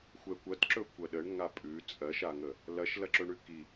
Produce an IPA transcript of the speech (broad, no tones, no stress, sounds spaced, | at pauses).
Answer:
xʷ ɛ kʷ ɐ t ǁ ɵ kʷ ɐ ɗ ə ɳ ŋ a pʼ ʉ t͡sʼ ɜ ʃ a ŋ ə | l ɐ ʃ l ɐ ǁ ɵ ɳ ʉ k i